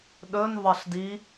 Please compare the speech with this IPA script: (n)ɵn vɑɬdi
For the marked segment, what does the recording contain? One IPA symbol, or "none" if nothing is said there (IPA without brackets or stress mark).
ɗ